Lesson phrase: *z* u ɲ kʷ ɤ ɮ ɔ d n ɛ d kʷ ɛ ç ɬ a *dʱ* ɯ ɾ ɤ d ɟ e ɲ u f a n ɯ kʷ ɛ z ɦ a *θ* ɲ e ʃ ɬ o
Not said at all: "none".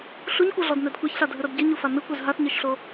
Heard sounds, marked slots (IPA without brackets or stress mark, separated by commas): ɬ, dʱ, θ